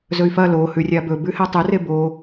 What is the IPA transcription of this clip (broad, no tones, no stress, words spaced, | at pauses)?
zɵy̯fɐ lo hʉrʲabɵ bʉhetˤɨ rebo